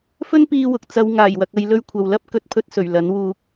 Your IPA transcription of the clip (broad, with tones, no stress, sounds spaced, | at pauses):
f ɵ˥ n p iː˧ w ʊ˨ k̚ t͡s ɐ˨˧ w ŋ aː˨˩ j w ɐ˨ k̚ ɐ˧ j l ɵ˧ ɥ kʷʰ ɐ˨ w l ɐ˥ p̚ k ɵ˨˥ t̚ pʰ ɵ˧ t̚ s ɵ˨˩ ɥ l ɐ˨˥ n w uː˧ k̚